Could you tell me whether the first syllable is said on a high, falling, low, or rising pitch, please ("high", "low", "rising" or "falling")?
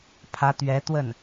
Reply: rising